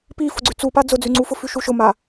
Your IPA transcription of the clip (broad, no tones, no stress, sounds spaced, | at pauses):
p i f ʊ ɡ͡ǀ ʉ t͡s u p a d͡z ʊ d͡z ʉ ŋ͡ǀ u f ʊ f ʉ ʃ u ʃ ʊ m a